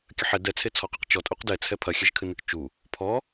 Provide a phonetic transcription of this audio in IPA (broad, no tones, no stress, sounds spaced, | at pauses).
kʲ ɐ ħ ɛ d ɛ t͡sʰ e t͡sʰ ɔ q ɨ q t͡ʃ ɔ tʼ u q d ɛ t͡sʰ ɛ pʰ ɐ xʲ ɛ ʒ kʰ ɨ n ɨ k t͡ʃ u | pʰ ɔ